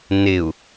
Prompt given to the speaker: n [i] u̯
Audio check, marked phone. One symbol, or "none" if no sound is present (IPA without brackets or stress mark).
ɪ